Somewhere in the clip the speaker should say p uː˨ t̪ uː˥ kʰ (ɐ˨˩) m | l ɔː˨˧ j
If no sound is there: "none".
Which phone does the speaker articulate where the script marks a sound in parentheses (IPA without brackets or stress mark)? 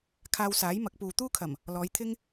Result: ɐ˨˩